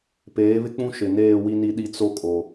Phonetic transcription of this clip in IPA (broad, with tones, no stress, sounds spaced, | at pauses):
p eː˨˦ β ɪ˦ k͡p ũ˦ ʃ ɪ˨ n eː˦˨ w i˦ n i˦ ɗ i˦ t͡s o˦ kʼ o˨